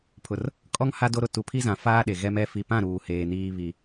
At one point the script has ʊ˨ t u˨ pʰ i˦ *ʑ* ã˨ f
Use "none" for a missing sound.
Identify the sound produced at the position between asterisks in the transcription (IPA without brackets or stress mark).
z